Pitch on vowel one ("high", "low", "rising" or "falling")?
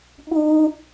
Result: high